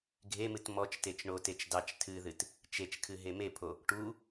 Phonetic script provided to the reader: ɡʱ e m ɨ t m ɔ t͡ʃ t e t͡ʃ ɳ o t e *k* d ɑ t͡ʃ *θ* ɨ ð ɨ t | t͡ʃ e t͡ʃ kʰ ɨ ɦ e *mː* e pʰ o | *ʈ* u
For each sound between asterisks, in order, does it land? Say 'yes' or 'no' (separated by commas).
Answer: no, no, no, yes